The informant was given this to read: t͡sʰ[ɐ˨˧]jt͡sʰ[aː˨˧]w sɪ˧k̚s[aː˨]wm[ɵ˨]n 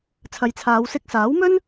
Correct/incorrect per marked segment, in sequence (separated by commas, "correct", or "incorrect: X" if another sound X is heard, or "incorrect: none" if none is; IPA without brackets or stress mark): correct, correct, incorrect: aː˨˥, incorrect: ɵ˥